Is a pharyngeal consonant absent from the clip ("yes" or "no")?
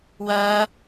yes